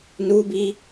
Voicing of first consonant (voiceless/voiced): voiced